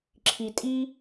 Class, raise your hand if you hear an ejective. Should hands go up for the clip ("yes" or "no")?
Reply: yes